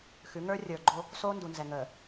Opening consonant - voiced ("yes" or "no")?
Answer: no